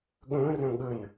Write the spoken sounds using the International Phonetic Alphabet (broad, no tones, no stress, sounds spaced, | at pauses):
ɠ ə̃ː r ə̃ː ɠ ə n